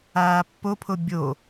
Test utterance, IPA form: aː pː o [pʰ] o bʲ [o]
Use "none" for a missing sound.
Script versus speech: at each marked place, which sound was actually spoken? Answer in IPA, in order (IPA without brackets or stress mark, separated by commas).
pʰ, o